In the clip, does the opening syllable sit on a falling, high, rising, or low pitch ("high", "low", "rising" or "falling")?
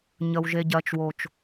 low